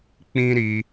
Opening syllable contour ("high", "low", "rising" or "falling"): high